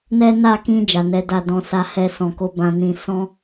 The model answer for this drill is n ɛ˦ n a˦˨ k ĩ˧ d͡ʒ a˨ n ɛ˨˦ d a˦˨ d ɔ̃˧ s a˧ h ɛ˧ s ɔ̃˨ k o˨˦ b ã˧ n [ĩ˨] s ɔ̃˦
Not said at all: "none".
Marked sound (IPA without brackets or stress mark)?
ĩ˧